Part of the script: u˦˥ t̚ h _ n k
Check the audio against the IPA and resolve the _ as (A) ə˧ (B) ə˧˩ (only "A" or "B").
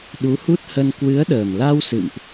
A